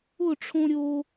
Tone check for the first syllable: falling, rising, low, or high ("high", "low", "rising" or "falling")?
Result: falling